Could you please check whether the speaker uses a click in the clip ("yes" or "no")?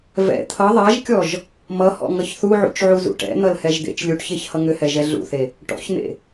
no